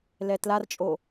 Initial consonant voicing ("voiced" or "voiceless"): voiced